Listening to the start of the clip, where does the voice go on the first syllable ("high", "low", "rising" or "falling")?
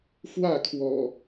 falling